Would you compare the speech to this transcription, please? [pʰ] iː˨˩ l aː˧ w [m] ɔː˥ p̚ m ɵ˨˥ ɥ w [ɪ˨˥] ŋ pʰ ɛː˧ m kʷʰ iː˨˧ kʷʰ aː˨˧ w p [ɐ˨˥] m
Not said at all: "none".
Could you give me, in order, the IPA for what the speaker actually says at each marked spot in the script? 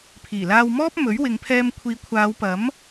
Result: pʰ, m, ɪ˨˧, ɐ˨˥

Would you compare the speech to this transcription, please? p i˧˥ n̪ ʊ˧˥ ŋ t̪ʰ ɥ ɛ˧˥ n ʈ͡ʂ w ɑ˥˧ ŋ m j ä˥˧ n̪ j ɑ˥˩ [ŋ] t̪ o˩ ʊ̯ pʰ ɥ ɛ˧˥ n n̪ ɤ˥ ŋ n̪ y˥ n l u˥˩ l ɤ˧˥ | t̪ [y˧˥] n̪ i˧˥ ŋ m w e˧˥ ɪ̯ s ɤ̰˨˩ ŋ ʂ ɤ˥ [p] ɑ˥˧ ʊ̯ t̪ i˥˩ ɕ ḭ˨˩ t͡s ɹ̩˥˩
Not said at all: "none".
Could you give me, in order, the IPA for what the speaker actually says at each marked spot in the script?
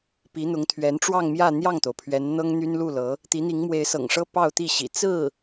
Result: ŋ, i˧˥, p

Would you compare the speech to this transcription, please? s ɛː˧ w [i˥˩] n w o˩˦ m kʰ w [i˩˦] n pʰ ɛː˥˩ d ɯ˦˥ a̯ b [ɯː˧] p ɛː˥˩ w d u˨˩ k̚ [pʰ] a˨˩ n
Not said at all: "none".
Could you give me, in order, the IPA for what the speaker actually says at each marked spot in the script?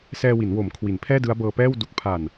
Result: i˩˦, i˩˦, ɤː˧, pʰ

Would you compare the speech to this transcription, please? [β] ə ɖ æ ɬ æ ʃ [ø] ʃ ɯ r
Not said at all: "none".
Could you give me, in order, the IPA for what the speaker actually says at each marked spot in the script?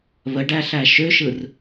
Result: β, ø

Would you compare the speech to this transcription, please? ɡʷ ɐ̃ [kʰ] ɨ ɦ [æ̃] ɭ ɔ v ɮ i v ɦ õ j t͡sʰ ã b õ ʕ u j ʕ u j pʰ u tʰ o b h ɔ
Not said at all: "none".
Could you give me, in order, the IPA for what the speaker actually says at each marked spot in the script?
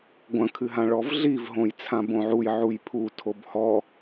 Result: kʰ, ã

